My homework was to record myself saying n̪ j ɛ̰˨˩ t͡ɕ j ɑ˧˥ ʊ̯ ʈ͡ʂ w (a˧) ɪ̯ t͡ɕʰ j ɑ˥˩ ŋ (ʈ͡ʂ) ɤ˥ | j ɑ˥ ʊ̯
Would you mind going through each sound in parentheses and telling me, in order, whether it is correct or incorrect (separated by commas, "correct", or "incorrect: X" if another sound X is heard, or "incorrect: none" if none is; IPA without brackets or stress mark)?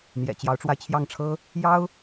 correct, incorrect: ʈ͡ʂʰ